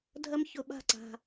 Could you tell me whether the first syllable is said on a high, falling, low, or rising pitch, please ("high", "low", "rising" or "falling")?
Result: high